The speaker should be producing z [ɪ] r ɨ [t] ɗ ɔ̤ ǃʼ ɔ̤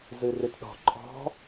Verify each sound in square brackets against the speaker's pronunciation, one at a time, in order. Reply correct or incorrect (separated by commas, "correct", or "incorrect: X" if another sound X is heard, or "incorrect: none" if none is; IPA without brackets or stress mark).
incorrect: ɨ, correct